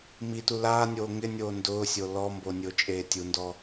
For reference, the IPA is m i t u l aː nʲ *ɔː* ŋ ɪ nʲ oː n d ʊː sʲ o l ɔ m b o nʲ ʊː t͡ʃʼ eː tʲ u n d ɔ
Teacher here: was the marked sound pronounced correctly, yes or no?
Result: no